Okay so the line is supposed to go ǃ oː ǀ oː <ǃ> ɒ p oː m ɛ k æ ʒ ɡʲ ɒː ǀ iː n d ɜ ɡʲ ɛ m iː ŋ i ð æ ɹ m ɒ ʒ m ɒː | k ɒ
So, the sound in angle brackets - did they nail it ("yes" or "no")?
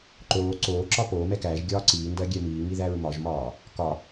no